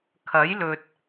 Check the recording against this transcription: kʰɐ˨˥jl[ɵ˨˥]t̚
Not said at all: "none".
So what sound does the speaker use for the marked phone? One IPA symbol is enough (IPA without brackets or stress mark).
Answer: ɵ˨